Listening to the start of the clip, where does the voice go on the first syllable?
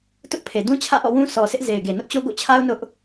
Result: high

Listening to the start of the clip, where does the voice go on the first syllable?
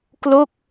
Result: falling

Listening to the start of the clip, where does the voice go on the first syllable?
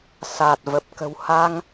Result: low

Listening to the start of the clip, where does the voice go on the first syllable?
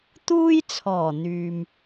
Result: high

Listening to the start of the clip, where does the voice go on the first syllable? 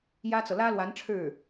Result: high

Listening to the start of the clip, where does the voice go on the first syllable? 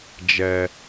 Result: low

